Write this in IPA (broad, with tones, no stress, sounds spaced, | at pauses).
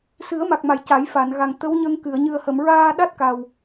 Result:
s ɨ˨˩˦ ə̯ m a˨˩ k̚ m a˨˩˨ j c a˨˩˦ j f a˨˩˨ n ɣ a˨˩ ŋ t̪ ə˧˥ w ɲ ə˧ ŋ k ɨ˨˩˨ ə̯ ɲ ɨ˨˩ ə̯ h ə˨˩˨ m ɹ aː˧ ɗ a˦˥ t̚ k a˨˩ w